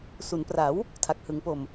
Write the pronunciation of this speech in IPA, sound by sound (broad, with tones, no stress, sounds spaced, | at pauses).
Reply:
s u˩˦ n p r a˩˦ w | tʰ a˨˩ k̚ h ɯ˩˦ ŋ p o˨˩ m